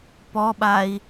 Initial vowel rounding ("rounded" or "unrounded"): rounded